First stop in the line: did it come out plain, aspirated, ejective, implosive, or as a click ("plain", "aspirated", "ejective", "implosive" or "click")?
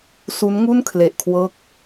aspirated